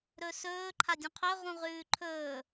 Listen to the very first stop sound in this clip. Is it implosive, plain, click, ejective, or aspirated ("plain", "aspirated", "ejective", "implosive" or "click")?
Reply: click